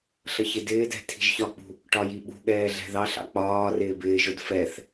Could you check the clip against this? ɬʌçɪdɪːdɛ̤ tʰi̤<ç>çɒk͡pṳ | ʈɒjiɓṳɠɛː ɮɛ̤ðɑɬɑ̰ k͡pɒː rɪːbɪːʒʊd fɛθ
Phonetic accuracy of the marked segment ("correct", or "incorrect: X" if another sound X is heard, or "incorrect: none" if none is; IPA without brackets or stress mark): incorrect: ʒ